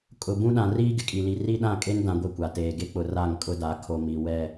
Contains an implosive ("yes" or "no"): yes